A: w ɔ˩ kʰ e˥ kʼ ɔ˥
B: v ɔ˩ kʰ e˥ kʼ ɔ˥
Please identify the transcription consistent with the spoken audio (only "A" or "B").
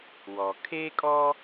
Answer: A